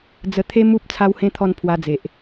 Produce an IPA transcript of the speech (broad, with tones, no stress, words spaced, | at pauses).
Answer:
d͡zə˧t̪ʰe˦ mu˦p̚ t͡sʰa˧whẽ˧t̪ʰɔ˧n pʰwa˧d͡ze˨ʔ